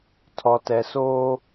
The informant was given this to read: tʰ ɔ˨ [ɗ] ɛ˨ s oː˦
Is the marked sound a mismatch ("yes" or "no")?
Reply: yes